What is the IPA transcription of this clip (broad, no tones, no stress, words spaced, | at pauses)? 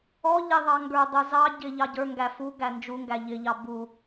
ɔ ʎɪ ðˤɑŋɡə˞dˤə˞ zɑ ɟɪ ʎɑɟə˞ŋɡæ fu ɡænd͡ʒuŋɡæ ʎɪʎɑ bu